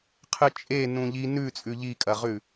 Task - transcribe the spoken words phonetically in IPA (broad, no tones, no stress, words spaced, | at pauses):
qʰɨt͡ʃʼe nũʎi nʉ t͡sʼʉʎikʼɐʁʉ